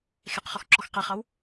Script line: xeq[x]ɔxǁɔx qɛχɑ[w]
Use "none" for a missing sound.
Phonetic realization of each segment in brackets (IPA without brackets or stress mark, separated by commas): χ, w